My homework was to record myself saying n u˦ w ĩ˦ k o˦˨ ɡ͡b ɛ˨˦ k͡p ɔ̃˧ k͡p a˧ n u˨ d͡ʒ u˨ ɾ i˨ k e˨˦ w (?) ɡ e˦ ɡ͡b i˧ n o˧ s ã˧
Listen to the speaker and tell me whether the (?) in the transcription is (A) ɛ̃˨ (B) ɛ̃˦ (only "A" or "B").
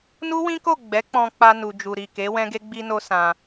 B